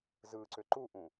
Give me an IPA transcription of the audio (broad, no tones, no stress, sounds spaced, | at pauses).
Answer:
z ɯ ǀ ʏ ǃ u ʔ ũ